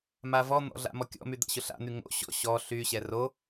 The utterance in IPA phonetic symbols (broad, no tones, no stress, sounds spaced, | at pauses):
m a v ɔ n̪ ɔ̰ ɮ a̰ m ɔ kʲ ɔ̰ m y d̪ a̰ ɕ ʊ ɬ a̰ n̪ y ŋ o̰ ɕ ɔ̰ ɕ ɔ ɬ y ɕ ɛ r o